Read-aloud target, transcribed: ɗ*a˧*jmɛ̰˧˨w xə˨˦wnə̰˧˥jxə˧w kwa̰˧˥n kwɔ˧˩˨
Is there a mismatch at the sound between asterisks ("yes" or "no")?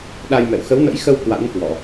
no